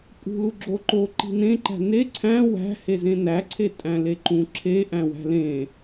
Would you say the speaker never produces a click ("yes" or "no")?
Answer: no